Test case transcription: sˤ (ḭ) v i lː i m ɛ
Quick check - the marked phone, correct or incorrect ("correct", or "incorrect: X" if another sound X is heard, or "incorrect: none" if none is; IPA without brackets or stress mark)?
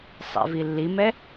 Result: correct